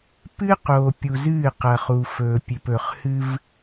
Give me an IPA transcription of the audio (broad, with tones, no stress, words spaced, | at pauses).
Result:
pɨː˦qoː˨ pʲu˨zɨː˦˨qɐ˨ χu˨ fɵː˨pʲʉ˨pɵ˨χhɨ˦v